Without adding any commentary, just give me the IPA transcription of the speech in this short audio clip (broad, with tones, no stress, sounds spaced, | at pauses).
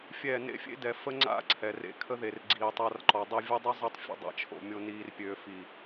fʲ ɛː˦˨ n ḛ˦ fʲ ḛ˦ d ɛ˨ f ə˦ ŋ͡ǀ a̰˦ ǀʰ ɛ˨ r ḛ˧ kʰ ə˦ ð e˨ r ɡ͡ǀ iː˨ tˤ a˧ r ǃ ɔ˨ dˤ i˧ vʲ ə˦ dˤ y˦ zˤ i˧ tˤ fʲ ə̰˧ dˤ a̰˧ t͡ʃʰ o̰˨ mʲ o˧ n iː˧ r pʲ øː˨ f i˨